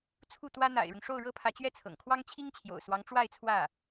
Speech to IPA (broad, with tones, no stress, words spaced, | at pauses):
t͡sʰu˥˩t̪wä˥ n̪a̰˨˩ɪ̯ɻʊ˦ŋ ʂo˥˩ʊ̯ɻɤ˥pʰä˧˥ t͡ɕɥɛ˥˩t͡sʰɤ̰˨˩ŋkʰwɑ˥ŋ t͡ɕʰi˥ŋt͡ɕʰjo̰˨˩ʊ̯swɑ˧˥ŋ ʈ͡ʂwa˥˧ɪ̯t͡sʰwä˥˩